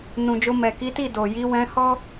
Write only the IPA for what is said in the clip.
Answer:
n ũ˨ d͡ʒ o˧ m ɛ˨ k i˨˦ t i˦˨ d o˨ j i˨˦ w ɛ̃˧ h ɔ˦

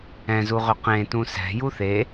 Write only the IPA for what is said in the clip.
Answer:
ɛ̃ z u ʁ ʏ q ẽ t ũ s ɛ̤ j u θ e

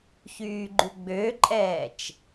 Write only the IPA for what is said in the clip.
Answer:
ç yː ɡ͡ǃ ʉ ɡ͡b ø ǃʼ ɛː t͡ʃ

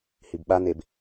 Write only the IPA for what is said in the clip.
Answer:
h i b ɓ a n̪ e b

